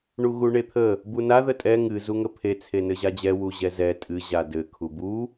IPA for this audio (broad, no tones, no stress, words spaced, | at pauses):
ɳuɣuɳet̪ʰə | buna ðətʼɛ ŋɨ zuŋəpʰe t͡sʰenɘʑad͡ʑɛ wuʑɛzɛ tʼɨ ʑadɘ kʰubu